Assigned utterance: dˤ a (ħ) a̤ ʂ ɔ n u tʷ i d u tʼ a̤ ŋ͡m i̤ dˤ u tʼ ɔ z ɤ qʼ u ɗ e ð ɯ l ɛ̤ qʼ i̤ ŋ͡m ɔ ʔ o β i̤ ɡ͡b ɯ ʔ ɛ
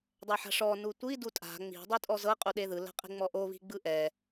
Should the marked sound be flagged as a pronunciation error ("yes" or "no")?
no